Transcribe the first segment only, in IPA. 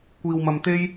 kʷ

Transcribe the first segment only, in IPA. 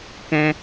k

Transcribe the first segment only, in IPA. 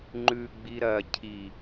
ŋ͡ǃ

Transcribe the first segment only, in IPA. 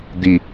d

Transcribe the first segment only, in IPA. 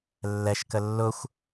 lː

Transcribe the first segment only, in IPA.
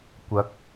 kʷ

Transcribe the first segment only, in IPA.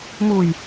m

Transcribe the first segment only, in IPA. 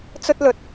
t͡s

